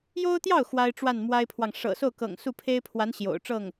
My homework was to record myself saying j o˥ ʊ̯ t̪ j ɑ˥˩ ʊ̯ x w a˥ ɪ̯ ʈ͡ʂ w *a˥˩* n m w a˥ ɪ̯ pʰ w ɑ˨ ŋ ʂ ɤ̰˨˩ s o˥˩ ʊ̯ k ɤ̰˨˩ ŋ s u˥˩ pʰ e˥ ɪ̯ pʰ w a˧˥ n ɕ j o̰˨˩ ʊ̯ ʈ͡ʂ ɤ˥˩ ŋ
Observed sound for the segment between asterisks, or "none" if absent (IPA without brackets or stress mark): a˥˩